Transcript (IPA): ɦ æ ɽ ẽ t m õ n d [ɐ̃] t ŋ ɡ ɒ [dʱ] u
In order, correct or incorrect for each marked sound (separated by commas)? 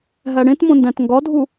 incorrect, correct